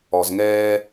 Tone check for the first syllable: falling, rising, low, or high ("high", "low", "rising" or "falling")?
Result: low